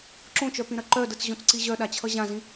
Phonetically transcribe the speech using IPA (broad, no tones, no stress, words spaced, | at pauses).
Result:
ǁõt͡ʃœpĩɾɐ ǃœdɯt͡sʑõt͡sǀi ʑœɗat͡ɕʰʌ ʑãzĩ